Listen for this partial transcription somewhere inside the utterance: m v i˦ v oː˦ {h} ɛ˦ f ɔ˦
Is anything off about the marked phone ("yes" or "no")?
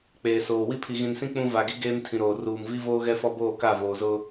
yes